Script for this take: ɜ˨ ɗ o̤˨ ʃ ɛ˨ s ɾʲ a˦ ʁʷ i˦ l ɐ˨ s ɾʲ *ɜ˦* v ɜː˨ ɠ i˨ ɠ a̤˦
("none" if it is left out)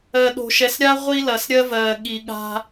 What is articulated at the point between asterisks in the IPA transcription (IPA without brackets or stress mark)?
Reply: ɜ˦